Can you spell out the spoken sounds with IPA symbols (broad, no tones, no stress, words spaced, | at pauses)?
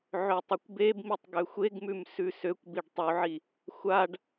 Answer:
ʕøtˤekʷbebmitˤ ɡøxʷeɡmʉm sʉsøkʷbiɖ tˤuʕi | xʷaɖ